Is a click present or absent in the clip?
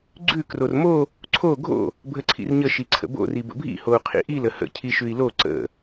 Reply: present